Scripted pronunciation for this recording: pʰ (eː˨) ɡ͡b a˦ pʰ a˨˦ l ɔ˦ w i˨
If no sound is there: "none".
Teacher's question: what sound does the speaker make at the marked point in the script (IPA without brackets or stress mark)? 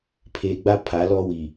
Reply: eː˨